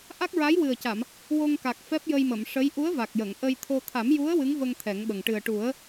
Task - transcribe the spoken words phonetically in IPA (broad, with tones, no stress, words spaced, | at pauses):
ʔa˦˥k̚ɹa˧˥jwɨ˨˩ə̯ca˨˩˨m | wo˧ŋka˨˩k̚ fɛ˦˥p̚jə˧jmə˨˩˨m ʂə˧˥j ʔu˧˥ə̯va˨˩k̚ jə˨˩˨ŋʔə˧jt̪ʰo˧ t̪ʰa˨˩˦mju˧˥ə̯ wɨ˧˥ŋvə˧ŋ t̪ʰɛ˨˩˦ŋɓə˨˩ŋ ʈɨ˨˩ə̯ʈu˨˩˦ə̯